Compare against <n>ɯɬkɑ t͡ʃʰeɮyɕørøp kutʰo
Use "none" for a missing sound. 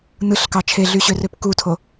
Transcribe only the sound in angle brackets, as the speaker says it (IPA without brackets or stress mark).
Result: n